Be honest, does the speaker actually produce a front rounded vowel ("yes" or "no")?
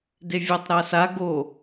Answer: no